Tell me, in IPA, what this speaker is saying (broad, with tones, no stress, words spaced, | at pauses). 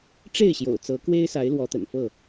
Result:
ʈ͡ʂe˥˨ɪ̯ɕjo̰˨˩ʊ̯ t͡sɤ˨˦kwe˦ɪ̯sa˨˦ɪ̯ lwɔ˨˦t̪ə̰˨˩nfɤ˥˨